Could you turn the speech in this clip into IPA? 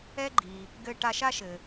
ɛ˥ ɡ͡ǃ i˩ | ɡ ɘ˧ ʈ a˧ ʃ a˥ ʃ ɘ˩

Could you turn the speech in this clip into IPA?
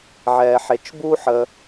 ʕ ɛ˧ ħ e˧ t͡ʃ b u˥ ħ ə˧

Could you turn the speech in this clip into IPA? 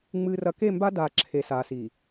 ŋ͡m ɨː˨ r ɐ˨ k e˦˨ m b a˦ d aː˨ ǁʰ e˨ s aː˨ s i˨

